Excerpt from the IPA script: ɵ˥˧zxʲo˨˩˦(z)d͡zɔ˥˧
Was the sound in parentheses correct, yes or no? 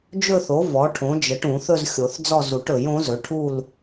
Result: no